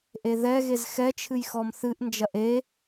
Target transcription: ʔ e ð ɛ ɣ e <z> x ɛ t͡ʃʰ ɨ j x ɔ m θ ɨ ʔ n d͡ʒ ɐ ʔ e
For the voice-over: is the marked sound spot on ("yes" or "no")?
yes